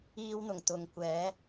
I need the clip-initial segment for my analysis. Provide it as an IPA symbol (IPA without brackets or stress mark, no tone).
iː